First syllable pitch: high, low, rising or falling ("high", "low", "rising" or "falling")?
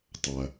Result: low